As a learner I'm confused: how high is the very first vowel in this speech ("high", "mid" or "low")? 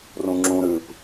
high